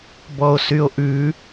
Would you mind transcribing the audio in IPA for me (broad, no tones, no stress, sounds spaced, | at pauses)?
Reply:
b ɔ o̯ s y o̯ ʔ ʉ